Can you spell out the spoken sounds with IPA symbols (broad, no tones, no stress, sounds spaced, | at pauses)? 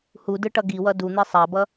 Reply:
h u d ɯ ʈ ʌ ɡ i w ʌ d u n̪ i sˤ a b ʌ